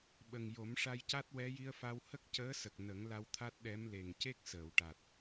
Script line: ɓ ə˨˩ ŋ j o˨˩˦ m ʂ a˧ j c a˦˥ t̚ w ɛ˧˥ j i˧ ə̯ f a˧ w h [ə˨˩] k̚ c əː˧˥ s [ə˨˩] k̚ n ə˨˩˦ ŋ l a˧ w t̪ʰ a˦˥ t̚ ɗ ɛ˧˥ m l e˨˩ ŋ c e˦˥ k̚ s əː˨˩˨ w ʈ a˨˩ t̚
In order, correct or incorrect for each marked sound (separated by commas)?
incorrect, correct